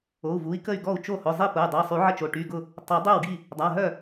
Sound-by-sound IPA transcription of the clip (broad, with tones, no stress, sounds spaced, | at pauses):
o˩˧˩ u̯ v u˩˧˩ i̯ k ə˥˩ y̯ ɡ ɔ˥˩ u̯ t͡ʃ o˥˩ h ʊ˩˧˩ zˤ i˥˩ p ʊ˩˧˩ y̯ dˤ ə˩˧˩ i̯ sˤ y˨˩˦ ʕ ə˥˩ t͡ʃ o˩˧˩ ʈ y˩˧˩ ɡ ʊ˥˩ | tˤ œ˨˩˦ dˤ ø˥˩ w ɡ i˥˩ | dˤ a˩˧˩ ɦ œ˥˩